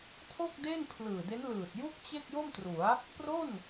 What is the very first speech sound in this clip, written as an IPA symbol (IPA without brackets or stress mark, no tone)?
tʰ